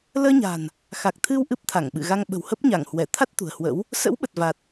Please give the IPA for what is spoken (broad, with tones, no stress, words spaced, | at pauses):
ləː˧ɲa̤˨˩n | xa˨˩k̚t̪ʰɨ˧w ʔɨ˦˥p̚t̪ʰa˧˩ŋɓɨ̰˧˨ɣa˧ŋ ɓə̤˨˩whə˦˥p̚ɲa˧˩ŋhwɛ˧˩ t̪ʰa˦˥t̚ t̪ṳ˨˩ə̯hwə̰˧˥w | sə̰˧˥wɓə˨˩t̚ va˨˩t̚